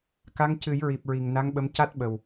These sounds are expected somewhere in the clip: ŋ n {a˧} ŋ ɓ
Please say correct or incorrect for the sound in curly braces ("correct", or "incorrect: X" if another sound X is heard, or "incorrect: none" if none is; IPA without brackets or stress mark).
incorrect: a˧˥